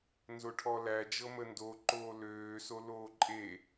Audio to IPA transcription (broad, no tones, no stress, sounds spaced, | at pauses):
n z o ʈʰ ɔ l æ d͡ʒ ɤ m ə n d o ǃ oː l øː s o l oː ǃʼ e